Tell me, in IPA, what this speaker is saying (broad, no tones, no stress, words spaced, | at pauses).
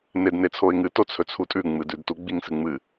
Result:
nednet͡sʰoɪ̯ŋɨ tot͡sʰɵt͡sʰutʼʉ ŋ͡mɨdʉdtu ɡ͡biŋsɨŋ͡mɨ